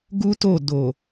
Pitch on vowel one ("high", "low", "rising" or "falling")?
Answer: high